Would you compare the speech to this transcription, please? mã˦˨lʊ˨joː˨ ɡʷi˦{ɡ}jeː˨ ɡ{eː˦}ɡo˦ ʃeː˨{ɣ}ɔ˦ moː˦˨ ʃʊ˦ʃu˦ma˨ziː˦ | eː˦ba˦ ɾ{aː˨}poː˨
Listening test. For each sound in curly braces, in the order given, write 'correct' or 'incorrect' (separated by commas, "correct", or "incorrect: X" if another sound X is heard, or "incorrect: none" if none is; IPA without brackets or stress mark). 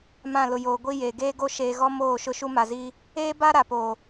incorrect: none, correct, correct, incorrect: a˨